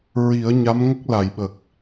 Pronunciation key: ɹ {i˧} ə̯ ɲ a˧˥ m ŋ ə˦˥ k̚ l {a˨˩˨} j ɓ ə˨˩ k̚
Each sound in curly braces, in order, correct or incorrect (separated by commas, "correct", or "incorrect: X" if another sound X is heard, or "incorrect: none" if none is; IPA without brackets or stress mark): incorrect: i˨˩˦, correct